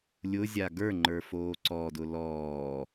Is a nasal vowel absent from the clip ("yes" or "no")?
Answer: yes